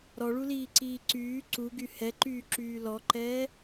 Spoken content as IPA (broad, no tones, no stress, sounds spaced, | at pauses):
ɾ ɔ ɭ u l iː ǀ iː ǀ yː ǀ u ɡ y h ɛ ǃ yː ǁ yː l ɔ ǃ ɛː